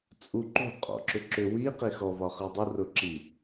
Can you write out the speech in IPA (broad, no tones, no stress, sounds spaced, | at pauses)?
t͡sʼ u ǃ ṳ qʼ ɔ̰ ǁ ʏ ǁ ʏ w i q i x ɔ v ɒ χ i dˤ ə r ʊ ǁ i